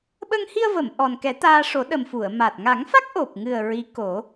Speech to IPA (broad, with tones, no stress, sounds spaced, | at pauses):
ɓ ə˧ ŋ h i˧ ə̯ v ə˨˩˨ m ʔ ɔ˨˩ n k ɛ˨˩˦ t̪ aː˧ ʂ o˨˩˦ ɗ ə˨˩ m f u˨˩˨ ə̯ m a˨˩ t̚ ŋ a˨˩˦ ŋ f a˦˥ k̚ ʔ o˨˩ p̚ ŋ ɨ˨˩ ə̯ ɹ i˧˥ k o˨˩˦